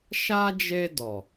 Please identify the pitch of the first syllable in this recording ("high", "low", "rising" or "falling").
high